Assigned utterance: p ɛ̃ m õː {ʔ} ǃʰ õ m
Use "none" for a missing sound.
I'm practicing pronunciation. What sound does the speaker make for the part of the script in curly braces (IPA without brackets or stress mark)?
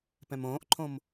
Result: ʔ